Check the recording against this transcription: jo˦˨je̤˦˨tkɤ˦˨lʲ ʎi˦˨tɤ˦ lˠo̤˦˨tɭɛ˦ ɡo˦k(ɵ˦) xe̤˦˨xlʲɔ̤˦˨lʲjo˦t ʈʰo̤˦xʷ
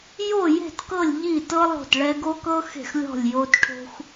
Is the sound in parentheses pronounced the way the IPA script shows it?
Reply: no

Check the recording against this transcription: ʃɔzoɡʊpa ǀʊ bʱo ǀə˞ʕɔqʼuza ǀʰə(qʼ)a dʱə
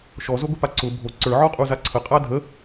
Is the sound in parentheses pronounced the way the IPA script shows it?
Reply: yes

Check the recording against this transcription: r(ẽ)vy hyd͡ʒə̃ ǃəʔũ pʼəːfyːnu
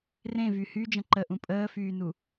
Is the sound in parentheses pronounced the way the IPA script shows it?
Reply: yes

